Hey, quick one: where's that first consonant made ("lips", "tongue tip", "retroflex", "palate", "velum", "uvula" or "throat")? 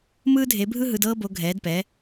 lips